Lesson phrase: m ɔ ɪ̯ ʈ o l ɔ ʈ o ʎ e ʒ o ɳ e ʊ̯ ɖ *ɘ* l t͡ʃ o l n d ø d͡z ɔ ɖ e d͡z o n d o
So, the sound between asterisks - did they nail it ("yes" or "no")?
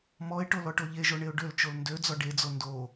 no